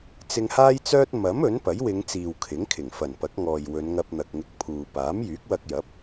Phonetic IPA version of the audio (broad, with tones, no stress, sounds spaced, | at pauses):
t͡s ɪ˧ ŋ h aː˥ j t͡s œː˥ t̚ m ɐ˨˥ m ɵ˨˥ n p ɐ˨˥ j w ɪ˨˧ ŋ t͡s iː˨ w kʰ ɪ˨˥ ŋ kʰ ɪ˨˩ ŋ f ɐ˨˩ n p ɐ˨˥ k̚ ŋ ɔː˨ j w ɵ˨˧ n ŋ ɐ˧ p̚ n̪ ɐ˨ k̚ ŋ ɪ˧ k̚ pʰ uː˨ p aː˨˥ m j yː˨˥ k̚ w ɐ˧ k̚ j ɐ˨˥ p̚